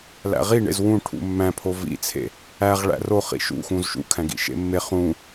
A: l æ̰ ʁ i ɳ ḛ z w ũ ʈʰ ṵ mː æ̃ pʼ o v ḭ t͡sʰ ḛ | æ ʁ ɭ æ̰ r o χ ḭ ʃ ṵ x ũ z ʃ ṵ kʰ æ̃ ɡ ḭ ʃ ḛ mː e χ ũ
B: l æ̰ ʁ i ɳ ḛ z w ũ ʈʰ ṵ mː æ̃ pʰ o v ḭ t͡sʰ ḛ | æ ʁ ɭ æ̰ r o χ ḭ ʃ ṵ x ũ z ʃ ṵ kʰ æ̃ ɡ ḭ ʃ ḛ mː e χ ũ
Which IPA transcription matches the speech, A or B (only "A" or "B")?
B